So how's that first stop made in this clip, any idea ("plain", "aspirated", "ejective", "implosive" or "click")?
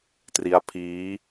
plain